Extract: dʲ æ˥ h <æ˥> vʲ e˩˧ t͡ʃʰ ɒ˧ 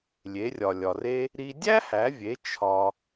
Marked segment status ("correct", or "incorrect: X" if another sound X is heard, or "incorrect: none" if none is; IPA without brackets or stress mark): incorrect: æ˩˧